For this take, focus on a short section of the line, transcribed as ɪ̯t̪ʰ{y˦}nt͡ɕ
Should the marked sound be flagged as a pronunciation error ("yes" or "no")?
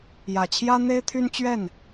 no